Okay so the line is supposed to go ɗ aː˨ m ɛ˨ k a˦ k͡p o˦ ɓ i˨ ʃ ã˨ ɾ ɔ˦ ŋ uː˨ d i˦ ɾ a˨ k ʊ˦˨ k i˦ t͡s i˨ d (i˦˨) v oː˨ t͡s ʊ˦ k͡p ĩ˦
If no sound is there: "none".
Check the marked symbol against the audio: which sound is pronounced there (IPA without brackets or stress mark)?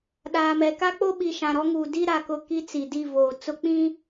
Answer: i˦˨